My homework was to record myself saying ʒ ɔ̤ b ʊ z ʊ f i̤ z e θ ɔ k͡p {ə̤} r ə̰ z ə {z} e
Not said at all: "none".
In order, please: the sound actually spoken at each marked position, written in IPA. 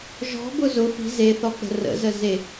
ə̤, z

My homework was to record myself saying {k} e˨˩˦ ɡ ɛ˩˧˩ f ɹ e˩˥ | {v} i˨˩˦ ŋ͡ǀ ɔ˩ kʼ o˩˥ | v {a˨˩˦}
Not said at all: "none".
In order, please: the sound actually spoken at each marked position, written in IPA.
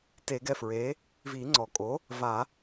t, v, a˨˩˦

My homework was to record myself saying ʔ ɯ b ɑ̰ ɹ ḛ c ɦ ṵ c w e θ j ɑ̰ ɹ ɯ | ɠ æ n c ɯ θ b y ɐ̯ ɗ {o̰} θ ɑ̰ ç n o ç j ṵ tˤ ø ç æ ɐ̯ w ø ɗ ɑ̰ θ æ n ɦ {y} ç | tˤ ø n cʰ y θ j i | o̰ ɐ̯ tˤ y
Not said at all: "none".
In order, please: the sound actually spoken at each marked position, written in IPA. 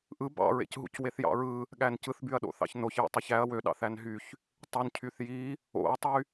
o̰, y

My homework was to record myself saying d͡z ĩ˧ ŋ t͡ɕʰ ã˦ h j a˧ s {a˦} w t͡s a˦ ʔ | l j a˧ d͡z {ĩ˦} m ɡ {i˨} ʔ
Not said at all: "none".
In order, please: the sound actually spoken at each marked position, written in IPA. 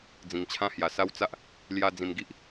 a˦, ĩ˧, i˦

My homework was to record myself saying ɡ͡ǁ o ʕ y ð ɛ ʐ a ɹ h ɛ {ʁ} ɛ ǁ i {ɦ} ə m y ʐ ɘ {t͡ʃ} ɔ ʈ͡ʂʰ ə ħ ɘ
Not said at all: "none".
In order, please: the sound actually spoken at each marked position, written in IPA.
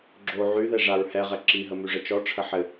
ʁ, ɦ, t͡ʃ

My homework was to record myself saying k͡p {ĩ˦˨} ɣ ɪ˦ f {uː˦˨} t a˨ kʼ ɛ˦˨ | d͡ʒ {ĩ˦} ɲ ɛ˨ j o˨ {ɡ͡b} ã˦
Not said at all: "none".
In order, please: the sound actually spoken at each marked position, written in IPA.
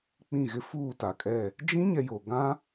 ĩ˦˨, uː˦˨, ĩ˦, ɡ

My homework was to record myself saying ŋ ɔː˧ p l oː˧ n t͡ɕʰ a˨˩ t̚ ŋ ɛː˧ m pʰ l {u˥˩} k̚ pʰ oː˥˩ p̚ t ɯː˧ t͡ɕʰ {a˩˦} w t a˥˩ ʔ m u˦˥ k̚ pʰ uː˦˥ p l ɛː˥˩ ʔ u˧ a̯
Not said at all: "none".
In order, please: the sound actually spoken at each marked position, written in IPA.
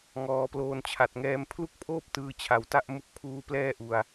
u˥˩, a˨˩

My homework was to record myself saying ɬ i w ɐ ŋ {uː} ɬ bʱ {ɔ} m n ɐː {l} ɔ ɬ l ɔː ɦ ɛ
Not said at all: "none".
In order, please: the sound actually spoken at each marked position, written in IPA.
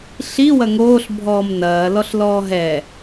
oː, ɔː, l

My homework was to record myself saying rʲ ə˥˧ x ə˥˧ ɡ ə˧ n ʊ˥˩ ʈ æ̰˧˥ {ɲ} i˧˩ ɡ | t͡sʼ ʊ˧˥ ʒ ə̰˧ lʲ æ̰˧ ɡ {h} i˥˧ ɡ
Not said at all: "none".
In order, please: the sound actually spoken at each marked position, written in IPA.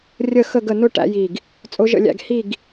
j, h

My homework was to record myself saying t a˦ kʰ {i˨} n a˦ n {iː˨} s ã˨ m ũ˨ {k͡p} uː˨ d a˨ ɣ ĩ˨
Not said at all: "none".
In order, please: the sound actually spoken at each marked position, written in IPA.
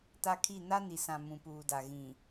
i˦˨, i˨, p

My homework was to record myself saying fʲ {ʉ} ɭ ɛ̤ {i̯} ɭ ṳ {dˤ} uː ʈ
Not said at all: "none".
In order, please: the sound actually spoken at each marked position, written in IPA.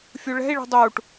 u, i̯, dˤ

